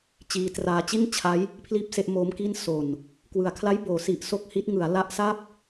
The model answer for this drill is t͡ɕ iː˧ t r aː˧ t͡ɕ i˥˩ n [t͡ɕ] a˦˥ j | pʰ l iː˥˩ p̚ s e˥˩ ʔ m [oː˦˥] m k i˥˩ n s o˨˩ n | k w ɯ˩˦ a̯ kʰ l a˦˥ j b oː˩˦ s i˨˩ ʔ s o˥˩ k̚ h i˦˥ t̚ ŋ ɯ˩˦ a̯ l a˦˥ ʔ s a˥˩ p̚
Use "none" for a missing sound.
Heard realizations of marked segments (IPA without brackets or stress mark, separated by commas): t͡ɕʰ, oː˦˥